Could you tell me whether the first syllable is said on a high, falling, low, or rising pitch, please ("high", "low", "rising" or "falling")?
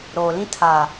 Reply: low